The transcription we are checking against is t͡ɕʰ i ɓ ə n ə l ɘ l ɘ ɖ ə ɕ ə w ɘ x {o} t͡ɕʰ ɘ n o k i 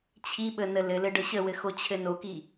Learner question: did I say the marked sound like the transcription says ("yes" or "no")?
yes